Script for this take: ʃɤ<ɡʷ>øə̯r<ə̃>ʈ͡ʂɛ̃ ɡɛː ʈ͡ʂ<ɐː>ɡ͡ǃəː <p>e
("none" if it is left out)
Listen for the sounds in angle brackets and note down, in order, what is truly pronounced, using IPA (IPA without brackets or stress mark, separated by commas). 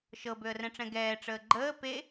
b, ɛ̃, əː, p